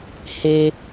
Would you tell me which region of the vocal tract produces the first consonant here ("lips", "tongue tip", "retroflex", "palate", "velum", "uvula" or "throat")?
throat